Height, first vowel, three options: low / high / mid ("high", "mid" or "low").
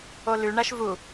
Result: mid